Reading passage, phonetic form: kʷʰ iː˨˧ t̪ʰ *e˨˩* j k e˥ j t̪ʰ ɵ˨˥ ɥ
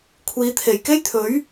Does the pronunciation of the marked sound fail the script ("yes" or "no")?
no